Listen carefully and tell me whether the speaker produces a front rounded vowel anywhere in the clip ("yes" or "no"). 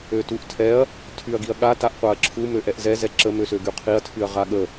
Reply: yes